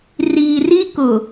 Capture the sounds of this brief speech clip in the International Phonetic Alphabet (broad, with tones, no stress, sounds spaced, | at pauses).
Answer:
r iː˨ r i˦ k ʊ˨